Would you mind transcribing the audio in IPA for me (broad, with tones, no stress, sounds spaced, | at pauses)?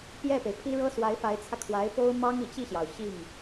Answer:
p j ɛ˥˩ p e˩ ɪ̯ pʰ i˥ ɻ ɤ˥ s w a˧˥ ɪ̯ f a˧˥ ɪ̯ t͡sʰ ä˧ kʰ w a˧˥ ɪ̯ p o˥ ʊ̯ m ɑ˥ ŋ i˨˩ t͡ɕ i˥˩ ɕ j ɑ˩ ʊ̯ ɕ i˥˩ ŋ